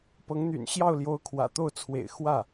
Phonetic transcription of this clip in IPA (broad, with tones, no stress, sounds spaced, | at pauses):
p ɤ˧˥ ŋ n̪ y̰˨˩ n ɕ j ɑ˥˩ ʊ̯ l j o˧˥ ʊ̯ kʰ w ä̰˨˩ t̪ o˥˩ ʊ̯ t͡sʰ w ḛ˨˩ ɪ̯ x w ä˥˩